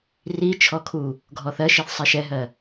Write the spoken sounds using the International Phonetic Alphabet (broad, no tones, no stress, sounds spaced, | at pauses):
r i t͡ʃʰ ɔ kʰ u | ɡʱ ɔ θ ɜ ʃ i θ sˤ i ʃ ɛ ɦ ɜ